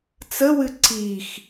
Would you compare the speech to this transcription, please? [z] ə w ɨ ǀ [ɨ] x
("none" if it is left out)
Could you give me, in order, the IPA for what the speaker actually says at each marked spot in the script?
t͡s, i

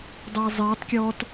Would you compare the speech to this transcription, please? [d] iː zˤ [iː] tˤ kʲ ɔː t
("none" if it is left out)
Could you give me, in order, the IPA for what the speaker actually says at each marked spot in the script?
dˤ, iː

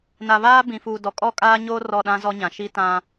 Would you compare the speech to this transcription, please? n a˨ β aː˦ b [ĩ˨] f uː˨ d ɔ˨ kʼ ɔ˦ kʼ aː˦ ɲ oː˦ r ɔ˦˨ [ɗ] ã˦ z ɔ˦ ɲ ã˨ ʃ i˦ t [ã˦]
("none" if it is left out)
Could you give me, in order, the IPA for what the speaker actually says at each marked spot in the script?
ĩ˨, ɗ, ã˦

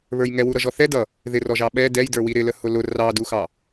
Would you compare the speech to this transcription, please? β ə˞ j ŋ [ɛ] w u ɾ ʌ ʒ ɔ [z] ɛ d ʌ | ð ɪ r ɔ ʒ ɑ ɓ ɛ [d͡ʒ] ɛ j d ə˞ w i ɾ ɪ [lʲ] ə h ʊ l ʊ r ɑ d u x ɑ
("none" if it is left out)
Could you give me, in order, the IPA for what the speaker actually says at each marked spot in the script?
ɛ, θ, d, l

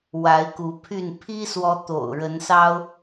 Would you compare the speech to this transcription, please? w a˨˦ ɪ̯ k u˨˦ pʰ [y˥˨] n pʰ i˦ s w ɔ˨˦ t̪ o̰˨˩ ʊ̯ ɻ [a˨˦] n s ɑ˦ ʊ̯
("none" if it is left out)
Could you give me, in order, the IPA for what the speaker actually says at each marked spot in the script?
y˥˨, ə˨˦

